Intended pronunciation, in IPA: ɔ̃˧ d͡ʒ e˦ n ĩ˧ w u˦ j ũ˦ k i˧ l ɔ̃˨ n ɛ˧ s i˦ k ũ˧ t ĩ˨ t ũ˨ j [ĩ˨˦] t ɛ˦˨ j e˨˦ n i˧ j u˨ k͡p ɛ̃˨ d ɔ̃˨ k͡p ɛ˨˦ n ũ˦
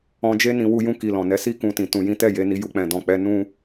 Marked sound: correct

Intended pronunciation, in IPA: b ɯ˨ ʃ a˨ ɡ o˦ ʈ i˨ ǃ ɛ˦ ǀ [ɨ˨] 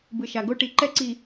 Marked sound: incorrect: i˨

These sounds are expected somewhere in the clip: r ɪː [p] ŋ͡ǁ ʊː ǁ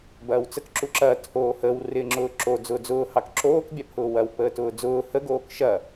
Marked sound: incorrect: none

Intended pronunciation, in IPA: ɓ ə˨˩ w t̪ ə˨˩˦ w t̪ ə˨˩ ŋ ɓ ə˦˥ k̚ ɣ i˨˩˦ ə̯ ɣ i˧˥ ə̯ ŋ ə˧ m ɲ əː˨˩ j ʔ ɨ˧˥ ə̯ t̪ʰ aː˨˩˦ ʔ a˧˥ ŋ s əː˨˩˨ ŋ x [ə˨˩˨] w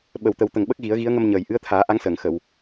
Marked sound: correct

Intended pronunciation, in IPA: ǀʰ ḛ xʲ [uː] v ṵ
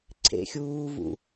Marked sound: correct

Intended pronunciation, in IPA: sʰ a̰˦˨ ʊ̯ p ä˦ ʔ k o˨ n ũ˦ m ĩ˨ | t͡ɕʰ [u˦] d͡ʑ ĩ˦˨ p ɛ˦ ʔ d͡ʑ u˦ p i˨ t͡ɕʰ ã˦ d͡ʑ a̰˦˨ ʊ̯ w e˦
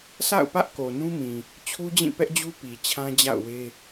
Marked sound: correct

